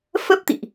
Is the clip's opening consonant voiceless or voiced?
voiceless